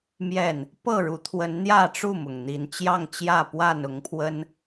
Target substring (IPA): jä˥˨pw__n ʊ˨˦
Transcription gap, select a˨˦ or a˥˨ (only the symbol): a˥˨